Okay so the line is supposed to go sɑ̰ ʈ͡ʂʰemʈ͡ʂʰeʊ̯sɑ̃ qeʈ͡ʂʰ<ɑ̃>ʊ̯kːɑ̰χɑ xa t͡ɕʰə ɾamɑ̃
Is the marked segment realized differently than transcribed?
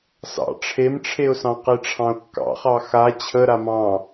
no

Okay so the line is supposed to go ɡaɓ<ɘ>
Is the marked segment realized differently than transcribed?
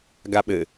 no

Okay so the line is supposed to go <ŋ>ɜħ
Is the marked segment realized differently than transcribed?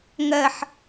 no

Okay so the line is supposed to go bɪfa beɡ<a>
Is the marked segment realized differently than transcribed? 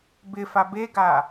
no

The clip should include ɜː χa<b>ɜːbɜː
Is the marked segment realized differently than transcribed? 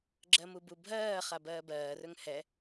no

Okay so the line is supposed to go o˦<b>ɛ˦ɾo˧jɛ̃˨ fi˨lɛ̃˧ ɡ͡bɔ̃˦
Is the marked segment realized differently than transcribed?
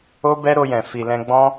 no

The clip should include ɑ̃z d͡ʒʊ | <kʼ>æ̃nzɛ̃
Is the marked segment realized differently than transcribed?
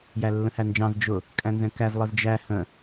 no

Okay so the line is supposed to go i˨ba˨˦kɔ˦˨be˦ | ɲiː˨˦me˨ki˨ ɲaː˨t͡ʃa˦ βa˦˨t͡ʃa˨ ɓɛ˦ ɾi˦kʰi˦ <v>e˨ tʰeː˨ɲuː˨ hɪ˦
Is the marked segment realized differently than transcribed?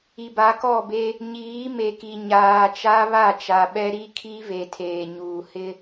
no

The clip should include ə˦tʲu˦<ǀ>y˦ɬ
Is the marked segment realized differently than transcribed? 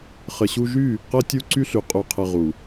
no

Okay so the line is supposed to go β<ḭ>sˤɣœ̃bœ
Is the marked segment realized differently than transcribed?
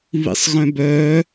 no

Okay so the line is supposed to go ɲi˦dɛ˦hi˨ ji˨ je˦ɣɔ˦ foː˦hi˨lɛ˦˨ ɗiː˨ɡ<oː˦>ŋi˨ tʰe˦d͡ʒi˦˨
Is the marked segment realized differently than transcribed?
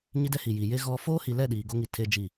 yes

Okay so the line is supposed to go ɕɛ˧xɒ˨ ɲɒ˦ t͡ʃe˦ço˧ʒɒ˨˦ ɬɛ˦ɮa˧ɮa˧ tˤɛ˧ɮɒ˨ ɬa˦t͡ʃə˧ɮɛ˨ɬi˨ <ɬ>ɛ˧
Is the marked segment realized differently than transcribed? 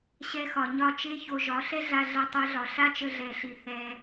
yes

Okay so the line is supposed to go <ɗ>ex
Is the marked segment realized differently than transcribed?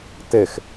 yes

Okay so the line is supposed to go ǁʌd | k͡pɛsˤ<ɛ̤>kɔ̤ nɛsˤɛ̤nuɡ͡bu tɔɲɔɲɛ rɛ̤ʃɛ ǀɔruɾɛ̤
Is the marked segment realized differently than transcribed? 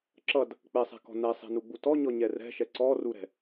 no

